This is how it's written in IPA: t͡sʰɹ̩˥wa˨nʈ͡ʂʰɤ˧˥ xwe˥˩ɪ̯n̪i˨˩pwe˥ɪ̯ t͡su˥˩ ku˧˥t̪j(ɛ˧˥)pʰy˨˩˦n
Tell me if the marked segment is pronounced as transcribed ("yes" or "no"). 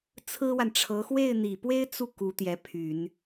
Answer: yes